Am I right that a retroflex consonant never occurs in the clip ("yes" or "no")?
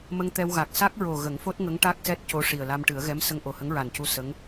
no